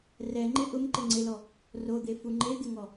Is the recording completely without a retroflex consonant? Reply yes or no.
yes